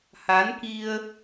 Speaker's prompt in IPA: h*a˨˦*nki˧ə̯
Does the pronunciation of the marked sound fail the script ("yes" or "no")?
no